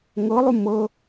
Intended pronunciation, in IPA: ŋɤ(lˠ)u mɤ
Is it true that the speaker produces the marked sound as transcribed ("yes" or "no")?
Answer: yes